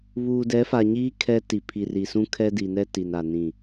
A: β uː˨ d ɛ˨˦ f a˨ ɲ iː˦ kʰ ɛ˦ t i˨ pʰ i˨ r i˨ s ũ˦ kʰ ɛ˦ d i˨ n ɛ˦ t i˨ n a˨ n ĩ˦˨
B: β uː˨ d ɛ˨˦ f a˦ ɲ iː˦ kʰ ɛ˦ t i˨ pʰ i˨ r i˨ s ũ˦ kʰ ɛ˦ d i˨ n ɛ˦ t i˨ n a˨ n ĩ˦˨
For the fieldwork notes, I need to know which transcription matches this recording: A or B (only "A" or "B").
A